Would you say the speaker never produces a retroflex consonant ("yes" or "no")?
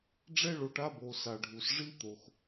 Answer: no